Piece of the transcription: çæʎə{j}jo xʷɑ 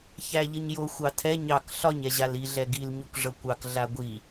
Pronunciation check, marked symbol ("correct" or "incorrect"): incorrect